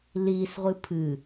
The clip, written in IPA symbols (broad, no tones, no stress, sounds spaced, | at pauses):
l i s ʁʷ ɨ pʰ ɨ